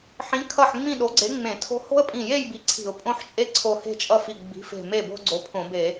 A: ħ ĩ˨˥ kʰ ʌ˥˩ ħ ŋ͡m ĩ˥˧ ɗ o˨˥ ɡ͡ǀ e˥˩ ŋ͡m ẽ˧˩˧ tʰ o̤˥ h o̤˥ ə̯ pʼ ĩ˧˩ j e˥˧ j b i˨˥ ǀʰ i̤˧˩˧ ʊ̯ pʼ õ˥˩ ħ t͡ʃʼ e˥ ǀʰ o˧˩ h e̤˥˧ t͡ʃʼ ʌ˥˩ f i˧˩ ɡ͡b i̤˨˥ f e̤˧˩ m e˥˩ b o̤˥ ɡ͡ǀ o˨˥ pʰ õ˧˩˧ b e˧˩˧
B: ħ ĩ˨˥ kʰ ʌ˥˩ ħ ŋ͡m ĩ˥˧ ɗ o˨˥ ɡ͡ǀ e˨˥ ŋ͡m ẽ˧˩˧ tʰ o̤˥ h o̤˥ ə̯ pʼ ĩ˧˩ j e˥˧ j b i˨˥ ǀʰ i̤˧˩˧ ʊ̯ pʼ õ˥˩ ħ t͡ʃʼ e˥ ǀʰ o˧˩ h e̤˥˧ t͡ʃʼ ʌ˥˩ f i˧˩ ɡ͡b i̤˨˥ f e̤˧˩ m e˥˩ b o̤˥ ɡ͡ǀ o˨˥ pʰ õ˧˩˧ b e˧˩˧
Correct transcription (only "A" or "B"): B